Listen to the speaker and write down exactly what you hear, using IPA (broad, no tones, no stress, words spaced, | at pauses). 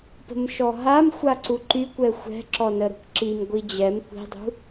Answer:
pə̤mʃɔɦamxʷa ǀuǃykʷɛ xʷɛ̤ǁɔ nəɾṳkǁimɡʷi d͡ʑɛm kʷi̤dˤṳ